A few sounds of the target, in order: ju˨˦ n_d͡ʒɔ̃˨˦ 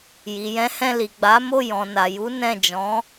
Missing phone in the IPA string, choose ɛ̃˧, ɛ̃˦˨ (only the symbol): ɛ̃˦˨